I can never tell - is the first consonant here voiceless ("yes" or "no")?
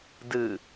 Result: no